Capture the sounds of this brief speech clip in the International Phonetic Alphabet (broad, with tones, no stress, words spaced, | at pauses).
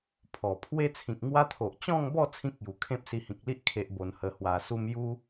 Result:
pʰɔ˨˩ pʰwe˦t͡sʰĩ˨k̚ŋwa˦t̪ʰo˨ʔ t͡ɕɔ̃˥˧ŋbɔ˥˧ t͡sʰĩ˦k̚ju˨˩kʰẽ˦p̚ si˧hĩ˨k̚li˦ʔ kʰe˦ʔbo˧nhə˧ hwa˨˩su˦m ju˦